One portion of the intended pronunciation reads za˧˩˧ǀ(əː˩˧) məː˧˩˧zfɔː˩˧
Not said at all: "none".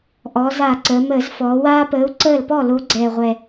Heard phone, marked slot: əː˩˧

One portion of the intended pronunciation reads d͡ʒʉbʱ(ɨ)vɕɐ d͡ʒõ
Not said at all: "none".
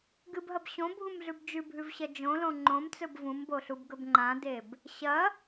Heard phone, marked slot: ʉ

